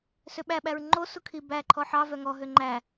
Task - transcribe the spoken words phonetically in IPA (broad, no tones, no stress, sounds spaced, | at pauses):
s ø ɓ æ ɓ æ ɹ ŋ͡ǃ o s u kʰ i b æ ǃʰ ɔ ħ ɑ v œ ŋ ɔ ɦ ø ŋ͡ǃ æ